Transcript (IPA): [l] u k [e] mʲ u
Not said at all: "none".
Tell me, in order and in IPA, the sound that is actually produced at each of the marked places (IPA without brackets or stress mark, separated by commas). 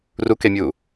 r, e